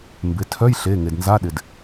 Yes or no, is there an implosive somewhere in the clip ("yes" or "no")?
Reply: yes